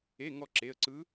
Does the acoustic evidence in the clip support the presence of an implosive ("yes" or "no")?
no